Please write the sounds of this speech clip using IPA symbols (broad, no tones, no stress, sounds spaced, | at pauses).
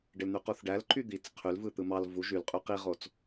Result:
ɖ e l n̪ y q u θ ɖ æ l ǃ y d̪ i t͡s qʰ y l v ɯ t̪ ɯ m ɑ l v u ʒ y l qʼ y q i ʁ o t͡s